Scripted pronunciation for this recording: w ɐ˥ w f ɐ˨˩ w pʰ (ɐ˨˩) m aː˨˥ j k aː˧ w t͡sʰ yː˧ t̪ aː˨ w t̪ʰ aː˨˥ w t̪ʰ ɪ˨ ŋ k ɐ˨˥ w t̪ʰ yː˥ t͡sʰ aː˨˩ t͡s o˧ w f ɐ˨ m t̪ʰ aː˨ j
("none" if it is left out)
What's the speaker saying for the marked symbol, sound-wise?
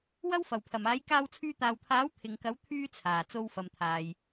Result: ɐ˨˩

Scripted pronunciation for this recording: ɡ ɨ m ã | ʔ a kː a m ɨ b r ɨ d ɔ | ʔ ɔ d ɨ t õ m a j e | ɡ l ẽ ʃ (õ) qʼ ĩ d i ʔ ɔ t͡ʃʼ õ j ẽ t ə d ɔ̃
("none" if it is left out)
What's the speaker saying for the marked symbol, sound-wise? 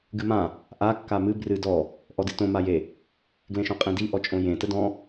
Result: õ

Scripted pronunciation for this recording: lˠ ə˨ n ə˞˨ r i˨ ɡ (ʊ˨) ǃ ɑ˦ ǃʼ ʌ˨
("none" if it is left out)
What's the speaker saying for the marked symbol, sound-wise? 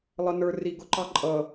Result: ʊ˨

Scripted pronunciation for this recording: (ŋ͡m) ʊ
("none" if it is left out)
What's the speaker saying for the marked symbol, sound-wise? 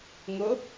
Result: ŋ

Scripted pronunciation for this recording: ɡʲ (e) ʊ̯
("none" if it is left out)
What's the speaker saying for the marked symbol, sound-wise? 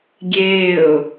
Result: eː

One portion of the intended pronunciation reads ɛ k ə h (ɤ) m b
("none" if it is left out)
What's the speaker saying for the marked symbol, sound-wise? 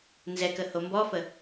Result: o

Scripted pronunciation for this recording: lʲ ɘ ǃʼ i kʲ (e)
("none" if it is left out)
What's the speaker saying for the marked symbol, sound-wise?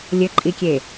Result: e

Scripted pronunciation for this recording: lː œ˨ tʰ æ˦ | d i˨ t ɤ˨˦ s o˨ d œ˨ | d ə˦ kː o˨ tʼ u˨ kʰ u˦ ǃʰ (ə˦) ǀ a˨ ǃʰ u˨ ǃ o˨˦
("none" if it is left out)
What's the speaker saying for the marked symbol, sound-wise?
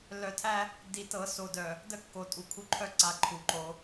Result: œ˦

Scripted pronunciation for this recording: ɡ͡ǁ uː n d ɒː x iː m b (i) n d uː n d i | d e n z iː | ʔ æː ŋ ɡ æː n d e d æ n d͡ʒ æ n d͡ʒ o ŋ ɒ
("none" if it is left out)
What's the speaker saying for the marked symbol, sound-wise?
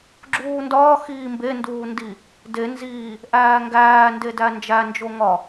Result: e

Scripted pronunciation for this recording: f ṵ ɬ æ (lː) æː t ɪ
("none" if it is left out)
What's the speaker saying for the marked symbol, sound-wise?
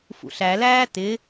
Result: l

